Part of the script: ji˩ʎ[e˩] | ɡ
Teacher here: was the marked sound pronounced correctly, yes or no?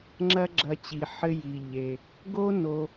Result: yes